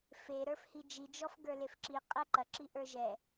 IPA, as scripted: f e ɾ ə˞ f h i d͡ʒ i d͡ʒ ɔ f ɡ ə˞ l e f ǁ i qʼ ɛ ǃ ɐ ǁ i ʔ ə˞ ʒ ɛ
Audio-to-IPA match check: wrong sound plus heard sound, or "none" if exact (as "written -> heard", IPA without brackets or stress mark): none